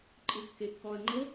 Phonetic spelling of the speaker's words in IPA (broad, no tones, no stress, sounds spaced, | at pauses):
ǃʼ ɯ kː e kː ɔ ɐ̯ ŋ͡ǃ ɤ